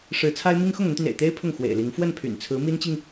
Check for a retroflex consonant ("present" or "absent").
present